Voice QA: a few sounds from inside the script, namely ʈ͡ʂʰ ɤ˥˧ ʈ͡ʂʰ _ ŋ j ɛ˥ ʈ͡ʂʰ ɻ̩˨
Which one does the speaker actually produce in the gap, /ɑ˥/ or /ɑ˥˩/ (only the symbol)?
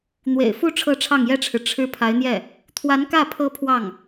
ɑ˥˩